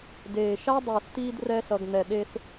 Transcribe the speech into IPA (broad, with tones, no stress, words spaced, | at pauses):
deː˨ʃa˦ dˤuː˨st̪iː˧drɛː˧ɬʌ˨ɡ n̪ɛ˨ɗe˧s